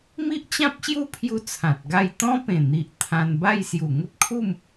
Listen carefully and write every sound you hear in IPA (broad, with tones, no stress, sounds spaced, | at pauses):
m i˦ ʔ t͡ɕ ã˦ p̚ ɕ j u˦ pʰ j u˧ t͡sʰ ã˨ t̚ ɡ a˥˧ j t̪ ɔ̃˦ p ẽ˨˩ n̪ i˨ ʔ t̪ʰ ã˧ n b a˥˧ j s j u˨˩ ŋ ə˦ p̚ kʰ u˥˧ m